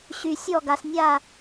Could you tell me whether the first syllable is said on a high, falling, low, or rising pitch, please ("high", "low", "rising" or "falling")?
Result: low